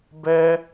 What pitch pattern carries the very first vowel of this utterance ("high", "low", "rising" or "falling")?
high